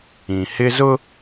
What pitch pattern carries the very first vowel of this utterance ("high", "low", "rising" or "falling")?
low